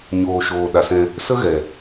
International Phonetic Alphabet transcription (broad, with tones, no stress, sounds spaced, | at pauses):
ɲ oː˨ ʃ oː˨ ɗ a˨ s ɛ̃˧ | s ə˦ ɣ ɛ˨